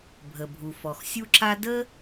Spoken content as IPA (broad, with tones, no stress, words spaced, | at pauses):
bʱə˩bʱu˩ fɔ˩xsʲu˥ǁa˥ də˥